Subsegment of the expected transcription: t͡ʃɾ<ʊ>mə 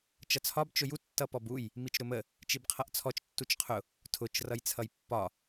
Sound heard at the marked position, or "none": ʊ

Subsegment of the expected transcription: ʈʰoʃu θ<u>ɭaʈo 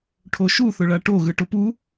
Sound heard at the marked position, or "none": ʊ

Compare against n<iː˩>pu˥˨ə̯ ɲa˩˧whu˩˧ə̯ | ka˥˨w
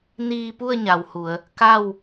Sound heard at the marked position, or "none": iː˧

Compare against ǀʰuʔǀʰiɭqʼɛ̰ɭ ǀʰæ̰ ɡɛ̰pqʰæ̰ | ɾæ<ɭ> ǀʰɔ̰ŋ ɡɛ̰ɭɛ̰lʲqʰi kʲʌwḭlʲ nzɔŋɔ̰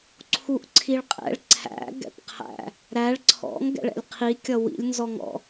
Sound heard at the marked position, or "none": ɭ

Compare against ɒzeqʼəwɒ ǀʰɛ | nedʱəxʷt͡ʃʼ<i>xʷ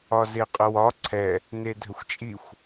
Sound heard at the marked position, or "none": i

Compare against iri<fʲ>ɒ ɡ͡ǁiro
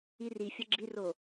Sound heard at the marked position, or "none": fʲ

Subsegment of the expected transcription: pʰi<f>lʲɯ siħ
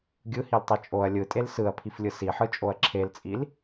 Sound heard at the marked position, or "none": f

